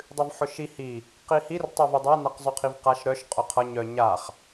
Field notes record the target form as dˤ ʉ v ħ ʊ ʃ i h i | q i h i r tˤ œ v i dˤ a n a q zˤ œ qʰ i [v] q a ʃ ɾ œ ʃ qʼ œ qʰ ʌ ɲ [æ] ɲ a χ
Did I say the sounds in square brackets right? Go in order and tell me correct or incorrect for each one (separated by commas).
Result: correct, incorrect